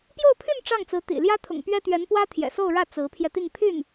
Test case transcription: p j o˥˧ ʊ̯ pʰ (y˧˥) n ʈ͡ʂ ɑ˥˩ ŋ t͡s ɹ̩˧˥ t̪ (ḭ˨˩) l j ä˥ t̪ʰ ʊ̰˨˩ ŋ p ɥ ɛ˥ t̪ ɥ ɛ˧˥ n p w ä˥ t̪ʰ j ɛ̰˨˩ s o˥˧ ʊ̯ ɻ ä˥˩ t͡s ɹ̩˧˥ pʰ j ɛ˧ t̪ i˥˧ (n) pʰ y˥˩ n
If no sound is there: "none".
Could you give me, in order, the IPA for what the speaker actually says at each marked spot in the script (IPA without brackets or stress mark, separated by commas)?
y˥˧, ḭ˨˩, ŋ